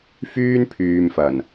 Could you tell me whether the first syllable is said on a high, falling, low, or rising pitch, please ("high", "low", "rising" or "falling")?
high